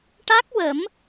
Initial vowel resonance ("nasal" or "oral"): oral